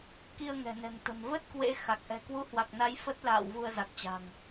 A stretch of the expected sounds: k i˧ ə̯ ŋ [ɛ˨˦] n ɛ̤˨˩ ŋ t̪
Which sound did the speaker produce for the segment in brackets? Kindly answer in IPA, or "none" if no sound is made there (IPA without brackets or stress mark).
ɛ̤˨˩